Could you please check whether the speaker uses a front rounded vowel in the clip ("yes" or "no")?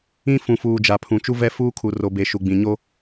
no